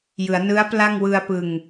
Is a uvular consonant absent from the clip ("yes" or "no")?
yes